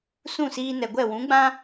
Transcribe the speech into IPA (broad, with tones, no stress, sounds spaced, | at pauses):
s ũ˦˨ s iː˧ n ɛ˨ ɡʷ ɛ˦˨ w ũ˨˦ ɡ͡b ã˦